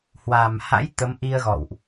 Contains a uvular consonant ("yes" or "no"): no